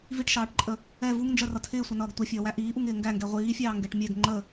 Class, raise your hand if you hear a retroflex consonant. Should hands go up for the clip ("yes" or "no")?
yes